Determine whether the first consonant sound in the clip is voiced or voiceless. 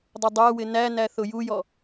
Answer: voiced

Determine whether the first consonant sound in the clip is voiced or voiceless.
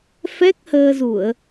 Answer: voiceless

